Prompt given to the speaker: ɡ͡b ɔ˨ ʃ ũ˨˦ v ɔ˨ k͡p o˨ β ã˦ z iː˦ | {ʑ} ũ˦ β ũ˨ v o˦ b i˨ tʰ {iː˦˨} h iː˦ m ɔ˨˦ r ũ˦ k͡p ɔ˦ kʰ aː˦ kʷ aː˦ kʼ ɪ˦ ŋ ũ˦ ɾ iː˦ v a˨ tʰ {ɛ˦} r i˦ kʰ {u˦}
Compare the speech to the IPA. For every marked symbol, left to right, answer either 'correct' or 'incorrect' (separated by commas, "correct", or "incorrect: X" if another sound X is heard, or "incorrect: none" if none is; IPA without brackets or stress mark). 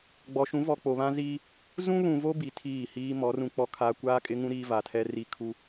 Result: incorrect: z, correct, correct, correct